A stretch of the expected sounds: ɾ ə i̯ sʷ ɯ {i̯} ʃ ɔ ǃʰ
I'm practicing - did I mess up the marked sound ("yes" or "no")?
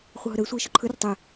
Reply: no